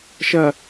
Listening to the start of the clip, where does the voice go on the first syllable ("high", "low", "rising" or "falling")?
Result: low